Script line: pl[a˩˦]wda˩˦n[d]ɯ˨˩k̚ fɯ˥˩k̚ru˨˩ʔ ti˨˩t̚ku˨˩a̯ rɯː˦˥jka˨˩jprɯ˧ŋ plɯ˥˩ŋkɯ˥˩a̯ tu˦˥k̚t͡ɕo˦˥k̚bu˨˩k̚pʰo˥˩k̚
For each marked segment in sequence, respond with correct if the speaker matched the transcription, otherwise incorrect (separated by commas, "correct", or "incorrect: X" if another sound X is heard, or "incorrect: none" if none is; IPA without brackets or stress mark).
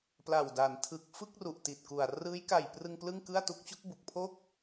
incorrect: a˨˩, incorrect: tʰ